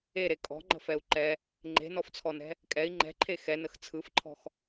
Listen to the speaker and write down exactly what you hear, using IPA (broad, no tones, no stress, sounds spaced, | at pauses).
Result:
e ɾ e kʼ ɔ̤ ŋ͡ǃ ə̤ f ɛ u̯ ǃ ɛ | ŋ͡ǃ e̤ n ɔ f t͡sʰ ɔ n ɛ̤ | kʼ ɛ i̯ ŋ͡ǃ ɛ̤ ǃʰ e x ɛ n ə x t͡sʰ ɯ f ǃʰ ɔ̤ x